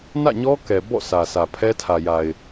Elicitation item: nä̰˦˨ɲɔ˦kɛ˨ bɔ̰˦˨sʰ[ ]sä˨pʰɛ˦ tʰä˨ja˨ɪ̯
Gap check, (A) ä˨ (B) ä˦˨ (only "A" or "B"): A